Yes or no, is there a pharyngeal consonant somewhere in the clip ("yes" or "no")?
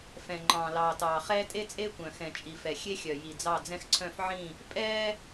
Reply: yes